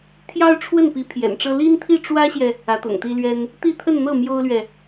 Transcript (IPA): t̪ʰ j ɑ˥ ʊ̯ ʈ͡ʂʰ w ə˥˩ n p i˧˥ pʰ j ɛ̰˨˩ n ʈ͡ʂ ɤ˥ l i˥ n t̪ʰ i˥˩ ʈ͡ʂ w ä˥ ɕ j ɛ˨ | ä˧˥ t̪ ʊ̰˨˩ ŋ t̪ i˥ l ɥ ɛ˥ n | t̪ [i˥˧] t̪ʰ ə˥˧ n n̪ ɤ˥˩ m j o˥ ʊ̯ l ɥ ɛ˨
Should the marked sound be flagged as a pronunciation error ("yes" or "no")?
no